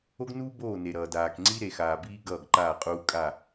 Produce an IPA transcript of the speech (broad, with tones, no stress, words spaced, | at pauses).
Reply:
o˦ɡnuː˦ boː˦˨ne˨ɾʌː˨ daː˨kŋ͡ǀi˦ ɾe˨xaː˨biː˦ ɡʌː˦˨ɡǃaː˦˨qʼuː˦ kʼa˦˨